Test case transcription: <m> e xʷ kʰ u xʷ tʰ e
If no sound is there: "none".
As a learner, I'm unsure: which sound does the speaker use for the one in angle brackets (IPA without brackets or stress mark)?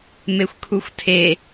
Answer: m